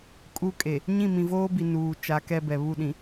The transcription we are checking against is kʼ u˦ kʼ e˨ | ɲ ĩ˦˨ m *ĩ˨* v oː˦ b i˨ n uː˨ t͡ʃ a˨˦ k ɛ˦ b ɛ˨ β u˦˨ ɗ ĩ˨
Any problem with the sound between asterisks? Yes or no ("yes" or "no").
no